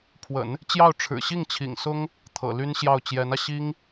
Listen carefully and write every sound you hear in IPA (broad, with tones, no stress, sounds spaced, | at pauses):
pʰ w ə̰˨˩˦ n | t͡ɕ j ɑ˥˩ ʊ̯ ʈ͡ʂʰ ɻ̩˨˩ ɕ i˥˩ ŋ t͡ɕʰ ḭ˨˩ ŋ s ʊ˥ ŋ | t̪ʰ ɤ̰˨˩ l y˥ n ɕ j ɑ˥˩ ʊ̯ t͡ɕ j ɛ˧˥ n ä˧ ɕ i˥ ŋ